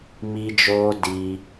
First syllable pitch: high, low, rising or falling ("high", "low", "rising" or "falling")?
high